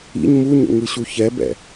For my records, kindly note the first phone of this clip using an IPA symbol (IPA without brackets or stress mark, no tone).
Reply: ḭ